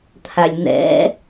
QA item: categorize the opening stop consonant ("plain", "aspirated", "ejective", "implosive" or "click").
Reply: aspirated